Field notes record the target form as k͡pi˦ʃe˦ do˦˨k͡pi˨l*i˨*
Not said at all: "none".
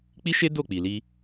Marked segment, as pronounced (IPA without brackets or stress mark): i˧